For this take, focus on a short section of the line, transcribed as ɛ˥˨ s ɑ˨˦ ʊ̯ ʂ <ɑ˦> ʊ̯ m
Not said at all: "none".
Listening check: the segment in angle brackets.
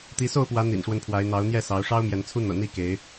ɑ˦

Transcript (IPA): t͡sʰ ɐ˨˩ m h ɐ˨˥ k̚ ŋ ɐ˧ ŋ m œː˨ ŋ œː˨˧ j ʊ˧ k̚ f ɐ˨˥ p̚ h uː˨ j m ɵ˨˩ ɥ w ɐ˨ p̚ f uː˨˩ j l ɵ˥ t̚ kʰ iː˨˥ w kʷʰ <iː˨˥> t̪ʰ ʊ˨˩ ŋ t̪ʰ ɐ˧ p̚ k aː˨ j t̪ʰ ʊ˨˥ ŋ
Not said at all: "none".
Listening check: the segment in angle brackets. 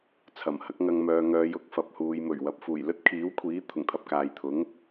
iː˨˥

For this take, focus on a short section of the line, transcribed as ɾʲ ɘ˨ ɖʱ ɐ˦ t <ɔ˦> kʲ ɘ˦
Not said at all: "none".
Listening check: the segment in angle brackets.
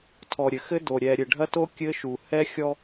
o˦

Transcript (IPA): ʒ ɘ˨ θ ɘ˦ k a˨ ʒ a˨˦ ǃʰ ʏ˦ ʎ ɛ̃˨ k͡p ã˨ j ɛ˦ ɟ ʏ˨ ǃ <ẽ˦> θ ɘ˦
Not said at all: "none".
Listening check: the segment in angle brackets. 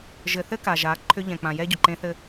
ẽ˦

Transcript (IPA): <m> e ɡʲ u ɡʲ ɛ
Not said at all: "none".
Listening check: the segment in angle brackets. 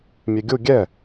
mʲ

